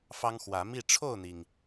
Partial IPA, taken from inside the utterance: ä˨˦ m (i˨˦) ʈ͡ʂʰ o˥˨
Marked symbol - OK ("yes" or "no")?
no